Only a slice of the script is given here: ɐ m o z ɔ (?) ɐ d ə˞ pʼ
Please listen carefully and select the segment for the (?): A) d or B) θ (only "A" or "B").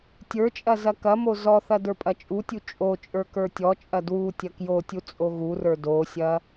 B